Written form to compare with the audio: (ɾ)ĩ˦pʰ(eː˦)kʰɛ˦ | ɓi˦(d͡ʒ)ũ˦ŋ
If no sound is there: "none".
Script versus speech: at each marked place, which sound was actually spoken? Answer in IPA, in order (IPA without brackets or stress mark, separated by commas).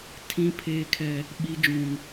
tʰ, eː˦, d͡ʒ